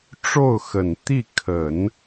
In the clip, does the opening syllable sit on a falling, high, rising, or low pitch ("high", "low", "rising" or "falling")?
falling